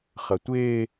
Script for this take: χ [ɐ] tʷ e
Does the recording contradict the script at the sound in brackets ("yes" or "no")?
no